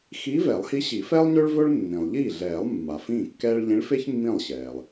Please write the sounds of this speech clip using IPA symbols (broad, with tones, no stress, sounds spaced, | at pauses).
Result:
x iː˧˥ v ɛ˨˩˦ lˠ h i˧˥ ɕ i˨˩˦ f ɛː˥ lˠ ɲ ø˥ ɭ v ɵ˥ ɭ nː ĩ˩ lˠ ʎ iː˥˩ ɮ ɛː˨˩˦ lˠ mː a˩ f ĩː˥˩ kː ɛː˥ ɭ ʎ ĩ˧˥ ɭ f e˥ ç mː ĩ˥˩ lˠ ɕ ɛː˩ lˠ